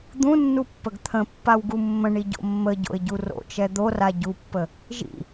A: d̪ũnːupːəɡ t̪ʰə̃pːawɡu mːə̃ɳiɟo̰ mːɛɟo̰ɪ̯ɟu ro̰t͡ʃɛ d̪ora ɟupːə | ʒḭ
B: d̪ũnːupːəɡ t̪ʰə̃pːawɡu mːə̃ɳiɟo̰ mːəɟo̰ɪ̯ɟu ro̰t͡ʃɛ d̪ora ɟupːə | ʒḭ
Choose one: B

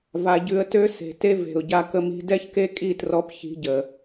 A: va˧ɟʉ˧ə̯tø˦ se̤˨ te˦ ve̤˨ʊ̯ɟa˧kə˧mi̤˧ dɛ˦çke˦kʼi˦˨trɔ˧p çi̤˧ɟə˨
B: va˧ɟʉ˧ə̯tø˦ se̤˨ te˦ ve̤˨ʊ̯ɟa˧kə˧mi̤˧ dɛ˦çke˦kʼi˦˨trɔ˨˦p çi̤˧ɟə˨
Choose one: A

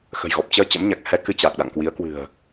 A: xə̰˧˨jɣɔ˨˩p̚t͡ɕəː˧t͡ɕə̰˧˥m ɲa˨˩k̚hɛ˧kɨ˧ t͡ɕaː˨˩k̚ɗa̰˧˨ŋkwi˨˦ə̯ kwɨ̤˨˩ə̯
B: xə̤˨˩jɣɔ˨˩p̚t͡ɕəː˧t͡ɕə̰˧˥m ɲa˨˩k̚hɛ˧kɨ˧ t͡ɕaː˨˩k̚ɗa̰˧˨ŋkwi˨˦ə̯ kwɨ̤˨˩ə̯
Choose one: B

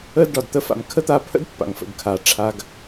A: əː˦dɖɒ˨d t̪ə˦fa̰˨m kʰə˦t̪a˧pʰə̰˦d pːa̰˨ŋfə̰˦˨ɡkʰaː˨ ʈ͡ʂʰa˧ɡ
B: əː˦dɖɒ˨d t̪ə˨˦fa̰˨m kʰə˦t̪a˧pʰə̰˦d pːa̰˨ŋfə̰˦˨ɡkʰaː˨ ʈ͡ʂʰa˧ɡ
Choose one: A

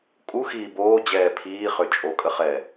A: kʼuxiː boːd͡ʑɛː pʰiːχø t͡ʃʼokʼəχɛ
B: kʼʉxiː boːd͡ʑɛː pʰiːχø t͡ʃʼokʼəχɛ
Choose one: A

